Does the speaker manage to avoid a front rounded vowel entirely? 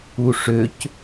no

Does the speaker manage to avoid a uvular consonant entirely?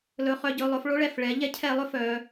no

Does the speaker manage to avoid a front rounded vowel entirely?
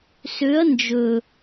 no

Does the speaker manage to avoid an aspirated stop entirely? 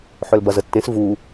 yes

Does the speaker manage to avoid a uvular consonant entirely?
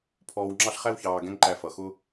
no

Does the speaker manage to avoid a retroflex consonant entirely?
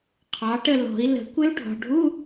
no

